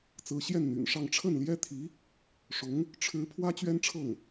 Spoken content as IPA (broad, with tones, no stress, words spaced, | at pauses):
t͡sɹ̩˧˥ɕjɛ˥˩nn̪y̰˨˩nʂɑ˥˧ŋ ʈ͡ʂʰə˥˩nljɛ˥t̪ʰi˧˥ | ʂʊ˧˥ŋ | ʈ͡ʂʰɻ̩˧˥ pʰwä˥t͡ɕɥɛ˥nʈ͡ʂʰɤ˥˩ŋ